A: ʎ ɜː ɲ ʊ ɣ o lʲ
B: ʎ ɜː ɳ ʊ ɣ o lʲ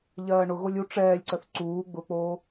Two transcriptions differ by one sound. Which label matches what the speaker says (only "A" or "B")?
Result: B